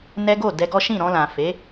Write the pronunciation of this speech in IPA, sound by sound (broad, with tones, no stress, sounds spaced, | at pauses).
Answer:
n ɛ˦ ɡ o˦˨ d ɛ˧ ɡ ɔ˦ ʃ ĩ˦˨ ɾ ɔ̃˧ l ã˨ f e˨˦